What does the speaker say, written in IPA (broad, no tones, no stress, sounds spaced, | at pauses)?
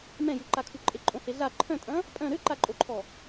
m ɛ̃ j u ǃ a kʰ u ǃʼ e ǃʼ õ h e ɮ a ǃʰ œ̃ tʼ ɐ̃ | pʼ œ̃ ɾ ø ǃ a ǃʼ o ǃʰ ɔ